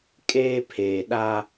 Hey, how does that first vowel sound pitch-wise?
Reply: high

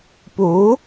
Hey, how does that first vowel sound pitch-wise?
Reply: rising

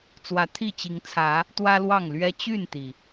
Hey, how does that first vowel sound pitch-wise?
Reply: rising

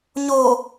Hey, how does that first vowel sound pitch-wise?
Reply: low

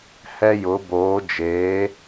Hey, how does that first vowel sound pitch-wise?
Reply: high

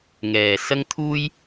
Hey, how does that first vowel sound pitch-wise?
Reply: low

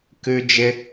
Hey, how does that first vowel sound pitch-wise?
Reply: high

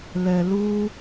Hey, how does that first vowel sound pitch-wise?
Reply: low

